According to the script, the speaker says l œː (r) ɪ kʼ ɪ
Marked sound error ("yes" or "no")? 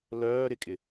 yes